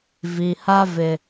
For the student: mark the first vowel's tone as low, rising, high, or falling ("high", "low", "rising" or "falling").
low